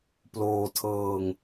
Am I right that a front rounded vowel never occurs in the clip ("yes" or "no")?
yes